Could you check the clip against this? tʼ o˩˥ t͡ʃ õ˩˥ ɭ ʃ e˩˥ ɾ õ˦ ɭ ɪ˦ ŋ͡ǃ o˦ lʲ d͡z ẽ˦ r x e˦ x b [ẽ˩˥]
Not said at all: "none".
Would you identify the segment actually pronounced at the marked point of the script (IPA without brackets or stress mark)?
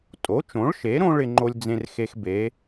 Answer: e˩˥